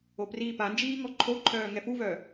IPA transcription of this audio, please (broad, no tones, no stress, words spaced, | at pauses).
opriːpand͡ʒiː ŋɔǃʰoǃʰœː ŋɛfuvœː